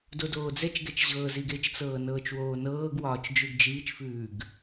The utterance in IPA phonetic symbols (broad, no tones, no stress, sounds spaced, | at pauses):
d o d oː d͡z ɛ t͡ʃ ɡ ɛ t͡ʃ ʑ ɤː z i ɡ e t͡ʃ t͡s ɤː n ɤː t͡ʃ w oː n ɤː ɡ w ɒː t͡ʃ d͡ʒ ʉ ɡ d͡ʒ iː t͡ʃ f ʉː ɡ